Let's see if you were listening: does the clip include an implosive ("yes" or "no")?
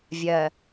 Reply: no